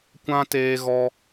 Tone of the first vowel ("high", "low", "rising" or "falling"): high